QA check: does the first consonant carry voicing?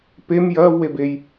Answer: no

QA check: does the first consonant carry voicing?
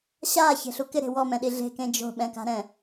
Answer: no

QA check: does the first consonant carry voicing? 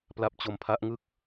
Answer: no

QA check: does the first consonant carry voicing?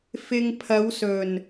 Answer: no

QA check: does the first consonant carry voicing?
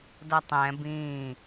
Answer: yes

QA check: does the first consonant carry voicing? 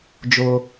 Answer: yes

